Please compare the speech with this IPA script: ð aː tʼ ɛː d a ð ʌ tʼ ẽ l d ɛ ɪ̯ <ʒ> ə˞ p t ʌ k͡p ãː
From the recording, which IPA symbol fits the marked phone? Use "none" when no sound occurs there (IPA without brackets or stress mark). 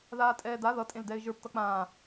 ʒ